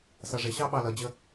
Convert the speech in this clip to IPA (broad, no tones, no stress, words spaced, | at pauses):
sʌʐɪɕɑ ɓɑlʌd͡ʑə